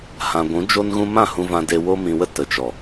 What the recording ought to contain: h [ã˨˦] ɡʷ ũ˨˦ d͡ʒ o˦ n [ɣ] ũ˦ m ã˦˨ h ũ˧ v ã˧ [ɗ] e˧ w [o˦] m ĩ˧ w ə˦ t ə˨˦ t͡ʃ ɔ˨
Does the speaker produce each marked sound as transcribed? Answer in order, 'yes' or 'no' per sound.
no, yes, no, yes

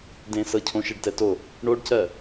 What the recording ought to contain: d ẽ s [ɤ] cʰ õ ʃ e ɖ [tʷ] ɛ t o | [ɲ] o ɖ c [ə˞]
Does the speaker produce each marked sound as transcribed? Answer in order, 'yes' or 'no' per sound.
yes, no, no, no

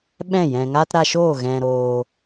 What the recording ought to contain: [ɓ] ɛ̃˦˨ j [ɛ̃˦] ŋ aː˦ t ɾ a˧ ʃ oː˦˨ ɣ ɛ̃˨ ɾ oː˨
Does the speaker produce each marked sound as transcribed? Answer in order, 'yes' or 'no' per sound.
yes, no

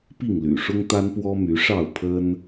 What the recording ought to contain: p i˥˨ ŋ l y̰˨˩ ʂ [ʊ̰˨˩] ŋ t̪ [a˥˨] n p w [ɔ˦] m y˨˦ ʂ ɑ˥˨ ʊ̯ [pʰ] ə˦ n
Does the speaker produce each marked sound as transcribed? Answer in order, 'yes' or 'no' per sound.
no, no, yes, yes

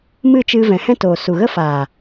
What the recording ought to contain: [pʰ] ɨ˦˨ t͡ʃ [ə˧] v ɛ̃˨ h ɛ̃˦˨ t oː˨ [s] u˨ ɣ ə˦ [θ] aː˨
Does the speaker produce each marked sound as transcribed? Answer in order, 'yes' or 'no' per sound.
no, no, yes, no

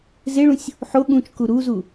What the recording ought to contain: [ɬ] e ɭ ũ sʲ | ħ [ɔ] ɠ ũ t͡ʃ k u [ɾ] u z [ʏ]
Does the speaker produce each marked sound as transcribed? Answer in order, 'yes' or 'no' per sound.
no, no, yes, no

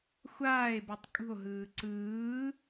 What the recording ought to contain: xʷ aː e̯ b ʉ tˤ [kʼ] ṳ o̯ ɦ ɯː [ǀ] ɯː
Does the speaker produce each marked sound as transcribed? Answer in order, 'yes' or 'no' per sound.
yes, yes

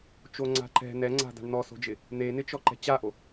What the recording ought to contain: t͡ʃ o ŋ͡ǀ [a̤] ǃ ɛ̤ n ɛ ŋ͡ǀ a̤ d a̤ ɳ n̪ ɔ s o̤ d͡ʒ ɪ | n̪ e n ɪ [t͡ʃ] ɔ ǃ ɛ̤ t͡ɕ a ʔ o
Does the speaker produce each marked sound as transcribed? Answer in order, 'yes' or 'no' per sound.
yes, yes

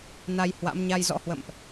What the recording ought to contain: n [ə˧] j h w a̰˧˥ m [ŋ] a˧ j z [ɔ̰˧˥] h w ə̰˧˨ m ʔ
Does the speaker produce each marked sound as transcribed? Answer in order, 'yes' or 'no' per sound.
no, no, yes

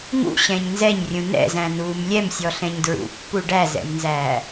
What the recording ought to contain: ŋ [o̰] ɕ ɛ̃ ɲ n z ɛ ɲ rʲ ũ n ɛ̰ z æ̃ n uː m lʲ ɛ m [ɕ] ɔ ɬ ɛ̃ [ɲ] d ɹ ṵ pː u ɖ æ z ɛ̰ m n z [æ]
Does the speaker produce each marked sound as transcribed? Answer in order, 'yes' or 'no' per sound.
no, no, yes, no

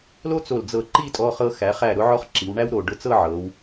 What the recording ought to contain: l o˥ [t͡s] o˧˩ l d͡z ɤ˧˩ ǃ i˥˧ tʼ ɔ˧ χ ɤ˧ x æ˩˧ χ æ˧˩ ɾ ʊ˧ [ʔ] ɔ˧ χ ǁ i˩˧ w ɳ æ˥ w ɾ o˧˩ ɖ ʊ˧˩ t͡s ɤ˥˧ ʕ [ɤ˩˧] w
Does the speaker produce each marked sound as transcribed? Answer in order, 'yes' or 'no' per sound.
yes, no, yes

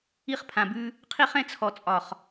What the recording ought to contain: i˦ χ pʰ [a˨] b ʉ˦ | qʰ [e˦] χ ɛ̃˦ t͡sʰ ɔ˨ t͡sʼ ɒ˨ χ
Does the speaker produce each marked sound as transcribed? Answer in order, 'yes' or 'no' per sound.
no, no

